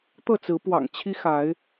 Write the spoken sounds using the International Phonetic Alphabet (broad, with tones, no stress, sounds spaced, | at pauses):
t̪ ɤ˥˨ t͡s ɹ̩˨˦ p w ɑ̰˨˩ ŋ t͡ɕʰ i˦ x a˨˦ ɪ̯